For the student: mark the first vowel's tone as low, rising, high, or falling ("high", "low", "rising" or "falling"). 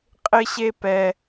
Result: high